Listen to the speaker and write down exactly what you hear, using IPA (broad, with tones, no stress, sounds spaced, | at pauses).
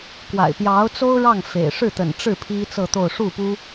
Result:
k w a̰˨˩ ɪ̯ p j ɑ˧˥ ʊ̯ t͡s o˥ ʊ̯ ɻ ɑ˥˩ ŋ f ḛ˨˩ ɪ̯ ʂ ɻ̩˥˩ t̪ ə̰˨˩ n ʈ͡ʂ ɻ̩˥˩ pʰ i˥ t͡s ɤ˥˧ t̪ o˥˧ ʊ̯ ʂ u˥˩ p u˥